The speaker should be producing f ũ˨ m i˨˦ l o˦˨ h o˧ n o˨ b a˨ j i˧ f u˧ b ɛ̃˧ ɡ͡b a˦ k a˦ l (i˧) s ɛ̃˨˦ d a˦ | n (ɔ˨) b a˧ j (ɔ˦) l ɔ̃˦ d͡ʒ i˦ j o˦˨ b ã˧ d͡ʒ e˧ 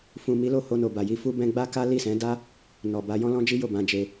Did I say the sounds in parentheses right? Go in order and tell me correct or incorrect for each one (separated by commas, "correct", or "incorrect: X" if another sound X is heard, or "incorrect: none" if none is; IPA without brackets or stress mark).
incorrect: i˦˨, correct, incorrect: ɔ̃˦